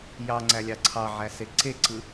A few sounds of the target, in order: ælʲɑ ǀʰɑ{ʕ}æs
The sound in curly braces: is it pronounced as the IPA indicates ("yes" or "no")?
yes